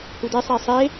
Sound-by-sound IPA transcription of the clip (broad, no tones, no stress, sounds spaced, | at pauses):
h u d e sˤ e sˤ e